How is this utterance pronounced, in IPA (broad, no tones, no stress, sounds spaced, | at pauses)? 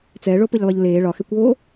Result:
t͡s ɛ ɭ o p ɯ ʎ lˠ ɯ ʎ l eː ɭ ɒ x ɛ kʷ oː